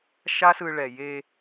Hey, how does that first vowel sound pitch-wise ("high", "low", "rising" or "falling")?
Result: high